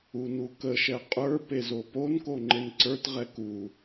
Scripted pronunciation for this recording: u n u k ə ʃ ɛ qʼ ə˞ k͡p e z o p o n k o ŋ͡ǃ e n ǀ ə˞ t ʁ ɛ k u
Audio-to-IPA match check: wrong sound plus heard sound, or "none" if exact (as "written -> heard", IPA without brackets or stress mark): k͡p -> p